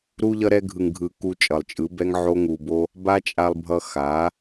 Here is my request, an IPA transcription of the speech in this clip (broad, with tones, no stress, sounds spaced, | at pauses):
ɾ u˧ ʎ ʌ˧ ɾ ɛ˧ ɡʱ ɯ˨ ŋ ɡʱ ɯ˨ k u˧ t͡ʃʼ ʌ˨ lˠ t͡ʃʼ ɯ˨˦ b ɛ˦ ŋ ʕ o˦ ŋ u˧ b o˦ | b a˦ t͡ʃʼ a˧ lˠ bʱ ʌ˧ x a˨˦